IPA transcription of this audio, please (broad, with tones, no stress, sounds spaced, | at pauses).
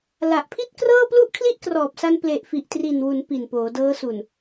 l a˨˩ ʔ pʰ i˥˩ t̚ k r ɤː˥˩ p l u˥˩ ʔ kʰ l i˥˩ ʔ k r ɔː˨˩ p̚ s a˧ n p l e˨˩ ʔ f i˨˩ ʔ t r i˨˩ n w u˩˦ n p i˨˩ n p oː˩˦ d ɤː˦˥ s u˨˩ n